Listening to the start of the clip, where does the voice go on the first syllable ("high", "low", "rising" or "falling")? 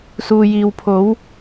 low